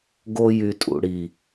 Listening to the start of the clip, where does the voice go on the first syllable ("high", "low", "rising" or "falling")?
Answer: high